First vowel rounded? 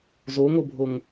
yes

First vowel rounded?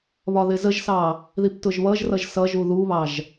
yes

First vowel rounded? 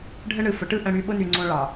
no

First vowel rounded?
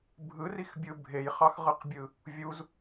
no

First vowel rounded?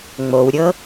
yes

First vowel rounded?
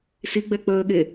no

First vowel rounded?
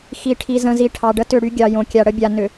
no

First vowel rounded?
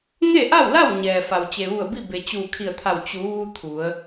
no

